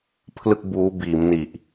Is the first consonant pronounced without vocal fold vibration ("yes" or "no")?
yes